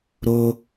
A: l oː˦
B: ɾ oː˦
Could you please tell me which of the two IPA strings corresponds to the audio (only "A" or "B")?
B